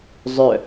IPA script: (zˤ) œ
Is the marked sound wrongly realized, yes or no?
no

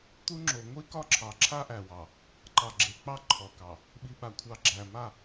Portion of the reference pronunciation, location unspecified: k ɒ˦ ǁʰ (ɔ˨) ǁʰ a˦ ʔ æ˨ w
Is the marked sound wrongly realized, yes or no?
yes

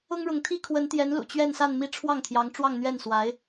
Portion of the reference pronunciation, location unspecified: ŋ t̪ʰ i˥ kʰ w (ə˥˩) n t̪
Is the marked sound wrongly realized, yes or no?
yes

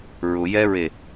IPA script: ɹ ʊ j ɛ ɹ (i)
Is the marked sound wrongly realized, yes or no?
yes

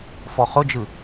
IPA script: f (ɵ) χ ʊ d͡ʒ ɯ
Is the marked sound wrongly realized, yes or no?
yes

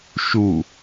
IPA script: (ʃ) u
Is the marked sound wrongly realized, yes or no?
no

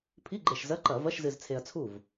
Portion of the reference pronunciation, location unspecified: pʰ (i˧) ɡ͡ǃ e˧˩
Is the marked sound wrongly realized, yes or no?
yes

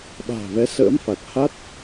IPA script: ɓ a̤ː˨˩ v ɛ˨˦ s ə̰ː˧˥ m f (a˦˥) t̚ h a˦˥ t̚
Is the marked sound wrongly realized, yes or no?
yes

